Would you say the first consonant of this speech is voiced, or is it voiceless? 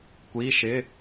voiceless